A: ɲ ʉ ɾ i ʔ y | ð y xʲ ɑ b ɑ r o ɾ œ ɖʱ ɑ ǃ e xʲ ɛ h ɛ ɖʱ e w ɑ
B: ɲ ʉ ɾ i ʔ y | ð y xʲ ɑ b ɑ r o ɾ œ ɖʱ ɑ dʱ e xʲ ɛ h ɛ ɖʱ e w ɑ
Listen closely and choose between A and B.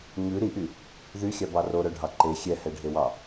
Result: A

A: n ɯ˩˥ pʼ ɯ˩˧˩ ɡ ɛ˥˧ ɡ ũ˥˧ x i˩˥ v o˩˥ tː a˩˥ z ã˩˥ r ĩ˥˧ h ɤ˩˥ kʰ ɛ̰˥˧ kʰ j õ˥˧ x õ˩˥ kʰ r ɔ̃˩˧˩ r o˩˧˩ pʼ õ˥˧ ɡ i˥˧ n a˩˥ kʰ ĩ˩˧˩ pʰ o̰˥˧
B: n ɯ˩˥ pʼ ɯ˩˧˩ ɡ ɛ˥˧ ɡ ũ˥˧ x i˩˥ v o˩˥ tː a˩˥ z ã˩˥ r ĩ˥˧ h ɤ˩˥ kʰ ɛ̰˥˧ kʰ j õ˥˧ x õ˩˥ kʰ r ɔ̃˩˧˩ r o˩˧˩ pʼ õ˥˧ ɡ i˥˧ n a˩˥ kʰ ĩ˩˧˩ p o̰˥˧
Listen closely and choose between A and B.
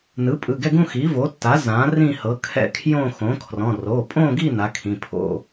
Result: A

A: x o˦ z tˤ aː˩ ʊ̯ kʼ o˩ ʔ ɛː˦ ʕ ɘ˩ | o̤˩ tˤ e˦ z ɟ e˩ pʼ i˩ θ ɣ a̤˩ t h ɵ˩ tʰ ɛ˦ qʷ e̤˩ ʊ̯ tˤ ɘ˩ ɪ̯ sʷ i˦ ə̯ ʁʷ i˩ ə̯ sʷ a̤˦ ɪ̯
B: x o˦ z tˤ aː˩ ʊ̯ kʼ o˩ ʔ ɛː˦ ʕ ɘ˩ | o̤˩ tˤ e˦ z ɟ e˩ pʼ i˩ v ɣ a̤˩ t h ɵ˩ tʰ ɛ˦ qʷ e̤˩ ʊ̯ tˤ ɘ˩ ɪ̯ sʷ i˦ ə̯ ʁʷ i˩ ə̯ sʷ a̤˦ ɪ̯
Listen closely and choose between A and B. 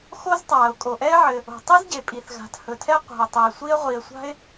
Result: A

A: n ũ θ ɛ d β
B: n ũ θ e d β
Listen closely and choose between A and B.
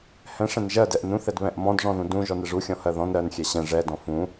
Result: A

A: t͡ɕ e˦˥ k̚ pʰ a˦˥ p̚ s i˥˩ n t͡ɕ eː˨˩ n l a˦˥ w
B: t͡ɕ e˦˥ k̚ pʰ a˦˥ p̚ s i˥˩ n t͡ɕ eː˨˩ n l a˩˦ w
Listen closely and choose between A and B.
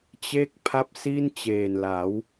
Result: B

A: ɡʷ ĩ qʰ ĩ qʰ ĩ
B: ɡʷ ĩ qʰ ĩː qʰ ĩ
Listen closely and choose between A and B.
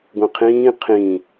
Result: B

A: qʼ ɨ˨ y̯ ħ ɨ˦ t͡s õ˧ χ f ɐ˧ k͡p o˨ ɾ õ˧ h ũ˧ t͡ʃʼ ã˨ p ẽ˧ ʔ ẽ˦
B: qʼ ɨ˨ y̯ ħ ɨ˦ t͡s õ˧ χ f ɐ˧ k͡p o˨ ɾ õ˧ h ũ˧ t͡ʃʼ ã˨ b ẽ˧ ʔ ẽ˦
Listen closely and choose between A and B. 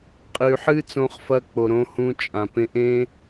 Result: A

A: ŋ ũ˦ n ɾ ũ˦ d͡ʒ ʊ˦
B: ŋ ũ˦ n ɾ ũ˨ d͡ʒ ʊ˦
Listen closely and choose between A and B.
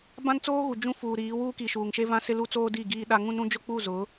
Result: A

